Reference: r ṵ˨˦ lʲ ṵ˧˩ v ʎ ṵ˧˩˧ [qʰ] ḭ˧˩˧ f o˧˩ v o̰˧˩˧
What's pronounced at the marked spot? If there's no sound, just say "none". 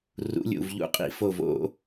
qʼ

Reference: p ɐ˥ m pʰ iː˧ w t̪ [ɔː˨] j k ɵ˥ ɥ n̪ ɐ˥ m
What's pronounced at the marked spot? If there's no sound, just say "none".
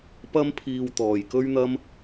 ɔː˨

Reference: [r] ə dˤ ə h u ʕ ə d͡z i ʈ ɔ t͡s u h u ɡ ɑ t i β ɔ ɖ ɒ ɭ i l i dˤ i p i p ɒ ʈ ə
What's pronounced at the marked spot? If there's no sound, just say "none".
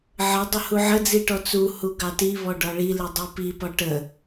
ʕ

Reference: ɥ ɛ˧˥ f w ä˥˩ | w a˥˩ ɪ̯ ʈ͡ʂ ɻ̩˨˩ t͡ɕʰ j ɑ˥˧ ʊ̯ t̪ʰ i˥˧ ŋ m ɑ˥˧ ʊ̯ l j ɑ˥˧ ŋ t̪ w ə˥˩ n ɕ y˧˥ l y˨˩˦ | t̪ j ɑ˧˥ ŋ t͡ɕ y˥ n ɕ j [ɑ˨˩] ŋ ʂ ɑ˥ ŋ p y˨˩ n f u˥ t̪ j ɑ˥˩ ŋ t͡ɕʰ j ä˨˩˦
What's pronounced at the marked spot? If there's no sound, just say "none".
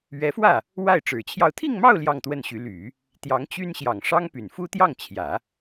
ɑ˨˩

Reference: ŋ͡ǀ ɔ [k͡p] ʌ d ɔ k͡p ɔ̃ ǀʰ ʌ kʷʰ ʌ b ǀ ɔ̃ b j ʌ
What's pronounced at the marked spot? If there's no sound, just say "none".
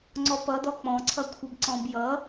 p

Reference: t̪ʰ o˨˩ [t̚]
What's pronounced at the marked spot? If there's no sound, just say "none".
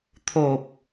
p̚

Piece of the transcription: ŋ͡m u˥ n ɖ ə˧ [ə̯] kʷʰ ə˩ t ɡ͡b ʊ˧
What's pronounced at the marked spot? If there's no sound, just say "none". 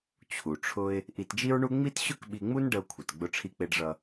ʊ̯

